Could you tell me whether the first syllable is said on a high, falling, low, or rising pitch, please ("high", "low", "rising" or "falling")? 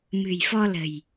low